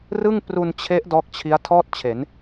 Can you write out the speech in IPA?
r ɯ˥˩ ŋ p r u˧ n t͡ɕʰ e˦˥ ʔ d ɔː˦˥ k̚ t͡ɕʰ i˦˥ a̯ tʰ ɔː˥˩ t̚ t͡ɕʰ e˩˦ n

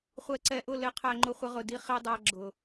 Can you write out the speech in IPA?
χʷ ɛ˨ ǀ ɛ˨ ʔ ʊ˦˨ l ɪ˧ qʰ æ˧ ŋ͡ǃ ʊ˧ χʷ ə˧ ʁ ʊ˨ d i˧ χ i˧ dˤ æ˧ ɡ͡ǁ ʊ˨

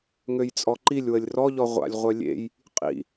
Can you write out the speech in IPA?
ŋ ø j t͡sʼ ɔ ǃ i lʲ w ə lʲ r ɔ ʎ ɔ ʁʷ a̰ lʲ ʁʷ œ lʲ ḛ j | qʼ ḭ

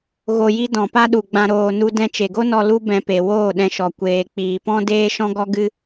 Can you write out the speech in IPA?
ɣ o˧ j i˦ d ɔ̃˨ p a˦ ɗ u˨ ɡ͡b ã˧ ɾ oː˧ n u˦ d ɛ̃˧ t͡ʃ e˨ ɡ o˦ n ɔ˧ l u˦ b ɛ̃˧ p e˨ w oː˦˨ ɗ ɛ̃˧ ʃ ɔ˨ kʷ eː˨ k͡p iː˨ p ɔ̃˦ d eː˦ ʃ ɔ̃˦ ɡ ɔ˦ ɡ ɨ˦

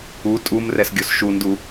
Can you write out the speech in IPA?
u tʼ u m r ɛ s ɡʲ o s ʃ u n d u

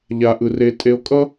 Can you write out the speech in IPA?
ʎ a˧ ʔ ɯ˧ r e˧ tʼ e˧ o̯ kʼ ʌ˦

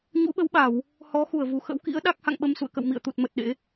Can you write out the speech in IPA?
ɲ ṵ˧˥ ɓ ə˨˦ w ɓ a˧˩˨ w | h ɔ˨˦ x u˧˩ ə̯ v u˧˩ x ə̰˧˥ w k ḭ˧˥ ə̯ ɗ a˦˥ k̚ h a̰˧˨ ŋ ɓ ə˧ m s ṵ˧˨ ə̯ k ə̰˧˨ w m ḭ˧˨ ə̯ t̪ u˨˩ t̚ m ə˨˩ t̚ ɗ ḛ˧˥

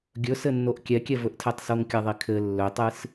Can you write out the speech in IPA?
ɡʲ ɵ s ɘ nː o ʔ kʲ ɛ kʲ ɛ v ɵ ʔ tʰ ɛ tˤ s o ŋ kʲ ɐ ðˤ i kʰ ɘ lː ɵ tˤ ɨ s

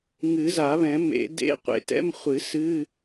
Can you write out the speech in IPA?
ŋ ɨ˨˩˦ z a˨˩˦ β ɛ̃˨˩˦ m ḛ˨˩˦ d ḛ˧˥˧ qʷ ḛ˨˩˦ t ɛ̰˧˥˧ m χʷ ɨ˨˩˦ s ɨ˧˥˧

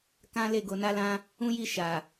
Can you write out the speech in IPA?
k ã˦ l e˦˨ ɡ o˧ n a˦ l ã˦ | ũ˦ j i˦˨ ʃ a˨

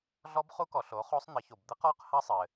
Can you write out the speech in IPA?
ɮ ɔ˦˥ b χ u˦˥ k ɔ˩˧ ɬ o˩˥ χ o˦˥ sˤ n̪ ɘ˩˥ ç o˩ b d̪ ɘ˦˥ q ɔ˦˥ q h ɐ˦˥ sˤ ɘ˩

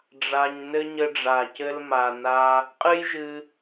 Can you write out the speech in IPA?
ɖ͡ʐ a˧ ɲ n ɘ˦ ɲ ɘ˧ ɖ͡ʐ a˨ c ɘ˧ l m a˨ n a˧ | qʼ ɨ˦ j ʒ ɨ˧

